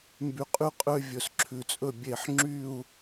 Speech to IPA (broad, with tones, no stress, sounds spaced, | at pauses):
m b y˧ qʼ y˥˧ qʼ ø˥ vʲ ɵ˧˩ s ǁʰ ʉ˧˩ t͡sʼ ɵ˥˧ bʲ e˧˩ ħ ŋ͡ǁ y˥˧ u̯